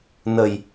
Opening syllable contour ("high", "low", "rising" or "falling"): low